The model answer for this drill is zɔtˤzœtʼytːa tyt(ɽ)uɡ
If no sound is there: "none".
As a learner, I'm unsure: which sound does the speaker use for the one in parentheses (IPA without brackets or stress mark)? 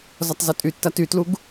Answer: l